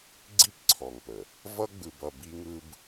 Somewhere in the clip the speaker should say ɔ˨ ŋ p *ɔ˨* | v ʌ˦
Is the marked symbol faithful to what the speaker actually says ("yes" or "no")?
no